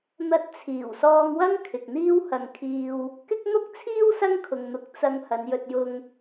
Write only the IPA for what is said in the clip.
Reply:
n̪ɐ˧t̚t͡sʰiː˨˩wsɔː˧ŋwɐ˥ŋ kʰɪ˨k̚n̪iː˥whɐ˧ŋkʰiː˧w | kɪ˧k̚n̪ʊ˧k̚t͡sʰiː˧w sɐ˥ŋkʰʊ˨ŋn̪ʊ˨˥k̚ t͡sɐ˧ŋ hɐ˨˧njɵ˧t̚jʊ˧ŋ

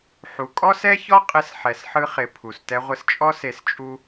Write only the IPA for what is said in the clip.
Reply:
ħu˨ kʼɔ˦sɛ˦çɔ˦qʼɪ˧s ħɛ˨sħɯ˧χɪ˨ pʰu˨stɛ˧ʁʷɪ˧s t͡ʃʼɔ˦se˧s t͡ʃʼu˦

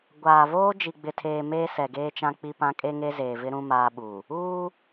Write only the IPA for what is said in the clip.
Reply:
ɡʷaː˨voː˦ d͡ʒi˨ɡ͡bɪ˨tʰeː˨ meː˦sɛ˨ɡeː˦t͡ʃã˦ k͡pi˦pã˦ kʼe˦ŋe˦zeː˨vɪ˦ ɾũ˦maː˦ɓu˨ | uː˦

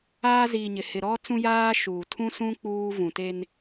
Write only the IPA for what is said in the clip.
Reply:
aː˦ziː˨ɲɪ˨ hɪ˨ɾɔ˦ t͡sũ˦jaː˦ʃuː˨ tʰũ˦sũ˦ k͡puː˦ vũ˨te˦n

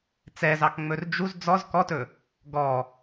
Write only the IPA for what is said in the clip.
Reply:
t͡sɛzɑkŋ͡mɵr d͡ʒuz d͡zɔz kɔtɵ | ɡɔ

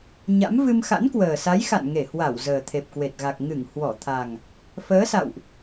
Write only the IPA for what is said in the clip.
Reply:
ɲa̰˧˥mvɨ˧m xa̰˧˥nkwəː˨˩sa˨˦jxa̰˧˨n ŋe˧˩hwa˧˩w zəː˨˩t̪ʰe˨˩p̚kwe˨˩t̚ɣa˨˩k̚ ŋɨ˧˩ŋ hwɔ˧˩ t̪ʰa˨˩ŋ | fəː˨˦sa̰˧˨wʔ

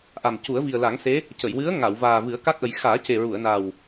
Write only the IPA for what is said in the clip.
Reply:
ʔa˨˩m cu˨˩˦ə̯vi˨˩ə̯la˨˩˦ŋse˧˥ | cə˨˩˨jwɨ˧˥ə̯ ŋa˨˩˨wvaː˨˩ vɨ˨˩˦ə̯ ka˦˥k̚ʔə˨˩˦j xaː˨˩˦ce˨˩ ɹu˨˩˨ə̯na˨˩w

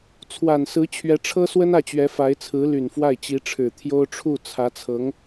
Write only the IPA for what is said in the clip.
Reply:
t͡sʰwa˨˩nsɹ̩˧˥ t͡ɕʰɥɛ˧˥ʈ͡ʂʰɤ˥swə˥n ä˥˩t͡ɕɥɛ˧˥ fa˧˥ɪ̯t͡sʰɹ̩˧˥ ly˨˩nfwa˥˩ɪ̯ t͡ɕi˧˥ʈ͡ʂʰɻ̩˨˩ t̪ʰjo˥ʊ̯ ʈ͡ʂʰu˥˩t͡sʰä˧˥t͡sʰɤ˧˥ŋ

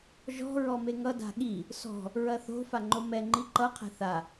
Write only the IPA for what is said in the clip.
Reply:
ʒɔ̤ ɹɔmeŋʌ da̤ɠi | sɔ̤ | ɹɐθo̤ faŋ͡ǃomɛ ŋ͡ǃiǃʌ qʰɛ̤θa

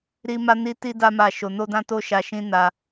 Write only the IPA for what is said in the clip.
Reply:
ɾi˦ma˦ni˦ ti˦da˦ ma˦˨ʃo˧ no˦dã˦to˦ʃa˧ ʃĩ˦ na˧

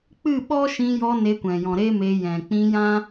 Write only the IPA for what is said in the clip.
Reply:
k͡pɨ˦˨ɓɔ˦ʃĩ˧jɔ˧ ne˧kʷɛ̃˨jɔ̃˨ ɾe˦me˧jɛ̃˨ k͡pĩ˧jã˦

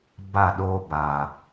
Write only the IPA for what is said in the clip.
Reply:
ba˦˨ɗo˦ba˨

